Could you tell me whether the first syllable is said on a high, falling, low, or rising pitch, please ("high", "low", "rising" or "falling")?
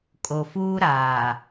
low